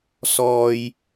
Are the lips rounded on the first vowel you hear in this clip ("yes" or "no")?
yes